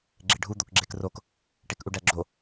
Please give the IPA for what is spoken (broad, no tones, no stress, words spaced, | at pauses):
ɡ͡ǁeɖʱu d̪okɡ͡ǁekrok | ʈekʔuɖæɡ͡ǁo